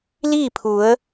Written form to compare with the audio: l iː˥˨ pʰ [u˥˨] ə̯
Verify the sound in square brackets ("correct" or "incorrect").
incorrect